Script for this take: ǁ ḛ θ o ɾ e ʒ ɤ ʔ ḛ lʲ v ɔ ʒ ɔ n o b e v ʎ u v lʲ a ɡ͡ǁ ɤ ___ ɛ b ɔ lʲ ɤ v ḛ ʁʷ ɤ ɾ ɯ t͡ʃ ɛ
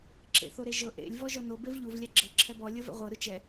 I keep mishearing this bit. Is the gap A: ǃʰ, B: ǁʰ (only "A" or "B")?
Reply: B